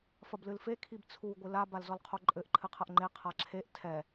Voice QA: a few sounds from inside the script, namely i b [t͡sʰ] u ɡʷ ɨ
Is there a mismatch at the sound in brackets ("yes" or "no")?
no